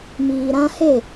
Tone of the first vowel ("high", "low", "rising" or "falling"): low